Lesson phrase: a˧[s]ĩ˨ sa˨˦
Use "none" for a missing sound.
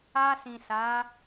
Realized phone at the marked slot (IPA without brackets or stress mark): s